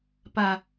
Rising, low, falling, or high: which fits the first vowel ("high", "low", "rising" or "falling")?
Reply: low